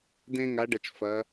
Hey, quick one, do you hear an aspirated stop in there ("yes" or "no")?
no